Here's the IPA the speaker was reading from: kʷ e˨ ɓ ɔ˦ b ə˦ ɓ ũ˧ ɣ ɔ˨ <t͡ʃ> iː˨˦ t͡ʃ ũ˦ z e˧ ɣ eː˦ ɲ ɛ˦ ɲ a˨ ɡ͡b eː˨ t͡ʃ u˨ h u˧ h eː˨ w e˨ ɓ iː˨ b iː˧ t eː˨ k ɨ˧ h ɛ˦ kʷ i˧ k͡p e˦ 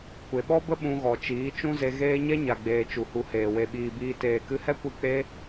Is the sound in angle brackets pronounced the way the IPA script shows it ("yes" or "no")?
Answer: yes